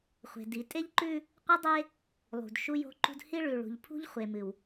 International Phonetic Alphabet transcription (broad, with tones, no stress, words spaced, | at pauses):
χʷe̤˨di˨ tʼe˦ʎǃʉ˦ | qʷɨ˦dˤe˦ | lˠṳ˨d ʃu˦jo̤˦ǃṳ˦d hi˦ɭʉ˨ ɭṳ˨ʎpʰṳ˦ʎ χʷe˨mɨ˨w